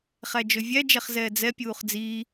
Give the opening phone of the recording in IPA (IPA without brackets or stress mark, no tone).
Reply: χ